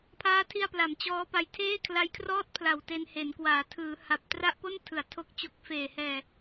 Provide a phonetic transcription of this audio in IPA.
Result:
pʰ aː˦˥ tʰ i˧ a̯ p l a˩˦ m t͡ɕ ɔː˦˥ p a˧ j tʰ eː˥˩ kʰ l a˦˥ j kʰ r ɔː˥˩ t̚ pʰ l a˨˩ w t e˧ n h e˩˦ n k w aː˩˦ tʰ ɯː˩˦ h a˨˩ p̚ t r a˥˩ ʔ p o˥˩ n tʰ ɯ˩˦ a̯ tʰ o˦˥ k̚ t͡ɕ o˦˥ k̚ f eː˨˩ h ɛː˨˩

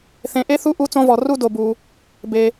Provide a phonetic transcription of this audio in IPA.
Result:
θ ẽ˨ ʔ e˥ θ u˥ ʔ u˦ t͡s õ˦ v ɔ˨ r u˥ d o˨ b u˨ | b e˨

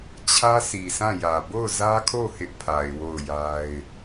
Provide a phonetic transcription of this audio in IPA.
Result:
t͡ɕʰ ä˦ sʰ i˨ s ã˦˨ j ä˨ b o˦˨ ʊ̯ z ä˦ kʰ o˦˨ h ɪ˦ ʔ pʰ a˨ ɪ̯ w o˦˨ ʊ̯ j a˦ ɪ̯

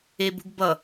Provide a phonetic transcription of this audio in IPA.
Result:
e b ṳ ɡ b ʌ

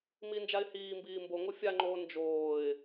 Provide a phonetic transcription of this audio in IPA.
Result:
m i n d͡ʒ a ɪ̯ h iː m b iː m b o ŋ o fʲ a ŋ͡ǃ oː n d͡ʒ oː ɪ̯

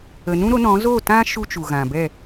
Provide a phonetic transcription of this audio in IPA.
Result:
ə˨ n ũ˦ ɾ o˨˦ n ɔ̃˨˦ z o˦˨ t ã˦ ʃ u˦ t͡ʃ u˨ ɣ ã˨ b ɛ˦˨

